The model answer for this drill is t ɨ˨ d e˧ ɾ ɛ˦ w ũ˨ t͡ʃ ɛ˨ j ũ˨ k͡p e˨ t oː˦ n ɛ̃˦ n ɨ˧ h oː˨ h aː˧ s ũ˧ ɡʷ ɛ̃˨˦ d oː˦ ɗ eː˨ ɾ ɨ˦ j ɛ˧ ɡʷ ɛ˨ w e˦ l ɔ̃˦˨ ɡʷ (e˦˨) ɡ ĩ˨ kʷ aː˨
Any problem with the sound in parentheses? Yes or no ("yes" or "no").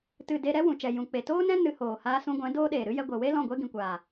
yes